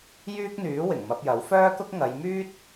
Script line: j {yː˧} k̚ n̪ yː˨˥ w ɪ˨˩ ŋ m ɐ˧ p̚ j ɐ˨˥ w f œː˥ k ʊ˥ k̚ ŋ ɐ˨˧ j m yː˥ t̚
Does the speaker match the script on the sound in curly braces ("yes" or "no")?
no